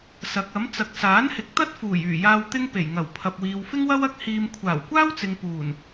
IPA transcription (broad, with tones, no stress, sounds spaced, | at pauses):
s ɐ˨˥ k̚ ɐ˨˥ m t͡s ɐ˨ k̚ s aː˨˥ n h ɪ˨˥ k̚ t̪ ɐ˥ t̚ f uː˨˩ j yː˨˩ j aː˧ w t̪ ɪ˥ ŋ p e˨˩ j ŋ ɐ˨˩ w pʰ ɐ˨ p̚ w iː˨ w f ɪ˥ ŋ w ɐ˥ w ɐ˥ k̚ h iː˧ m kʷʰ aː˨˩ w kʷ aː˥ w t͡s ɪ˨ ŋ p uː˨˩ n